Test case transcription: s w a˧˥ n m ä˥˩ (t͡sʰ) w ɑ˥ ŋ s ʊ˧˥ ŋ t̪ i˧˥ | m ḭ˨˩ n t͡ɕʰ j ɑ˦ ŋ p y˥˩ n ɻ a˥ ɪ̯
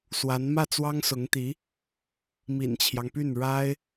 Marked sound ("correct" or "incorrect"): incorrect